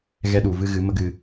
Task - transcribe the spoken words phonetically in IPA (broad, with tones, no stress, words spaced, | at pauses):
ɣɛ˧ɗu˨vɨ˧ ɣɨ˨˦mə˦ɡɨ˧